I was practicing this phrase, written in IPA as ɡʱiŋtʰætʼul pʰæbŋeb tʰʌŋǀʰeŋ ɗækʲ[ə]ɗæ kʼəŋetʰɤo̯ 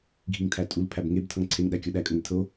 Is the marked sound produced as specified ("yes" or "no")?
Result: no